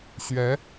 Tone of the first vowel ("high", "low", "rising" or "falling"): rising